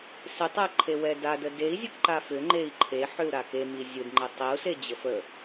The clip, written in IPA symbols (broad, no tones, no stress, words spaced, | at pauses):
sɪtˤɛǃʰewɛ dadə dei̯zʲək ǃafʏ ŋ͡ǃei̯ǃʰe ħʏu̯ɾakemi zʲɯdŋ͡ǃe tˤiu̯se d͡ʑəfə